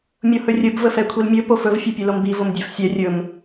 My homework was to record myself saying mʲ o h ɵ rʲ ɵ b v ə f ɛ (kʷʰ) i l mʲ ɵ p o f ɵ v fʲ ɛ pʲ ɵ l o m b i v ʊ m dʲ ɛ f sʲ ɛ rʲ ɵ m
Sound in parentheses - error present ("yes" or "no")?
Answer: no